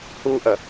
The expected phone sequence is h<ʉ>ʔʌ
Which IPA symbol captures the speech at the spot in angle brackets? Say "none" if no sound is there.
u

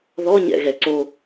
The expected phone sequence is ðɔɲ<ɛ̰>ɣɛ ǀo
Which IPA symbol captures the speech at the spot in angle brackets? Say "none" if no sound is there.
ɛ̰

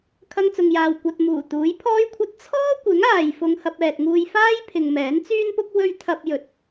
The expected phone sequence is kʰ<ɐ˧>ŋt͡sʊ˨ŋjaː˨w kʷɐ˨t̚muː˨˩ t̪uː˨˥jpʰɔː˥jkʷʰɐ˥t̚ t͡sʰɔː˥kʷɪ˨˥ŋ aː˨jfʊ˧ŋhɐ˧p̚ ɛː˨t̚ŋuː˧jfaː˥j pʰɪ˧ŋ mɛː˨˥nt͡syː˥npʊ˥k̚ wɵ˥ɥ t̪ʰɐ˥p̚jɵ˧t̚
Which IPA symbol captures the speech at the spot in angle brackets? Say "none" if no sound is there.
ɐ˧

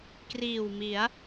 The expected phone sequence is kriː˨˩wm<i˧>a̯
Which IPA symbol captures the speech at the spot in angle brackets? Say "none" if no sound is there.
i˩˦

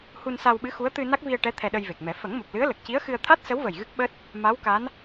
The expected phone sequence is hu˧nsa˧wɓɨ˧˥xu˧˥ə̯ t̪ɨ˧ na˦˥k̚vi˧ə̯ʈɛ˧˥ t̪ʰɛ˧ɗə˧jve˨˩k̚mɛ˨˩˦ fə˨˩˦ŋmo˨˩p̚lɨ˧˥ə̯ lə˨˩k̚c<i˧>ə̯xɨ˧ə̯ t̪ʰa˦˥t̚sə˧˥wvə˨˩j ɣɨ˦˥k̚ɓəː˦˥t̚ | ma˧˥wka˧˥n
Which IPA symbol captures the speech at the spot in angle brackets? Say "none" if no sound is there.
i˧˥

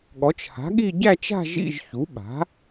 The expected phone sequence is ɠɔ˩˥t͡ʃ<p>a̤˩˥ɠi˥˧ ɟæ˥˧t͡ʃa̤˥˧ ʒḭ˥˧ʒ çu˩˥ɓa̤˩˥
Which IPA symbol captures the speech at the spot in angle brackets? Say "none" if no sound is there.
h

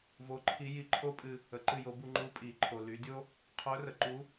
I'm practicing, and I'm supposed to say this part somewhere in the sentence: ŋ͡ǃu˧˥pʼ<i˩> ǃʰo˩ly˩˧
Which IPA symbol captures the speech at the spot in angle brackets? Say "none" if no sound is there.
i˩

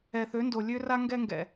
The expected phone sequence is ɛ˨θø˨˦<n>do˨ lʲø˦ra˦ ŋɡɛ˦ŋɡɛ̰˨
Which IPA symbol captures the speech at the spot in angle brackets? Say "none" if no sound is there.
n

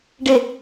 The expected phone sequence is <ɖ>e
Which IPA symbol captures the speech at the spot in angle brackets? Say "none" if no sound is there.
ɖ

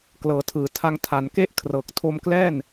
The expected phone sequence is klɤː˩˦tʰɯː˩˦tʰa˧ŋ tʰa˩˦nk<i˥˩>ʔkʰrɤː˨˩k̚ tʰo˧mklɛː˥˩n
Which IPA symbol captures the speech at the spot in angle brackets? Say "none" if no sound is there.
e˥˩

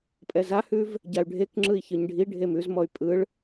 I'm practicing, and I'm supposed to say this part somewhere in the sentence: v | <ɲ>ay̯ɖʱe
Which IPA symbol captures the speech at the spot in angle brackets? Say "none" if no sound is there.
ɟ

